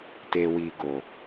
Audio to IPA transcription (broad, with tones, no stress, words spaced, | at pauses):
te˨wi˨ɡo˨